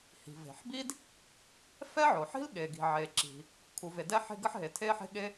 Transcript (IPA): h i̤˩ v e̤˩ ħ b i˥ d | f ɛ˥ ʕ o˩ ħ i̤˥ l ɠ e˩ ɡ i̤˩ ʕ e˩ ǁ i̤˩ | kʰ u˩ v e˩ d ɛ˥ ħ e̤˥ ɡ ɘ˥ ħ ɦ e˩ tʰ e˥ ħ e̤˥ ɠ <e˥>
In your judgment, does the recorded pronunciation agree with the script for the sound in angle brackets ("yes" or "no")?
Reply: yes